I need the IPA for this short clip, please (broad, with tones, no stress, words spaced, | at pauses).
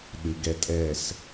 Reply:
ɗɨ˨ɡɛ˧ tʼɛ˦˨s